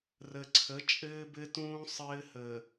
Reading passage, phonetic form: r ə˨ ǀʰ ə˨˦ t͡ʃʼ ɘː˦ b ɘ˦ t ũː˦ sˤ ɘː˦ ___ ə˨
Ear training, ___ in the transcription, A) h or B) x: A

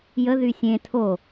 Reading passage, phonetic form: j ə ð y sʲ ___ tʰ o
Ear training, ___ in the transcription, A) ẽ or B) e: A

